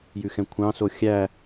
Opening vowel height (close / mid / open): close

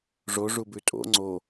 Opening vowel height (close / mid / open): mid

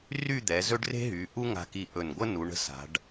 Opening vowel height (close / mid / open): close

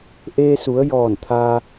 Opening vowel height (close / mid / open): mid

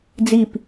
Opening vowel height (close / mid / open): close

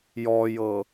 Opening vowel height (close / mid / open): mid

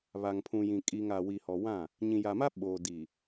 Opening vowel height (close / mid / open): open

